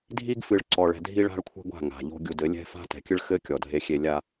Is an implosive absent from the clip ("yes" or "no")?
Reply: yes